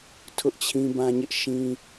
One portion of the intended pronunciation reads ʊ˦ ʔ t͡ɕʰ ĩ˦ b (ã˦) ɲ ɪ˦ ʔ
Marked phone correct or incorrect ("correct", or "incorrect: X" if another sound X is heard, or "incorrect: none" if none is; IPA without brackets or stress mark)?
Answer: correct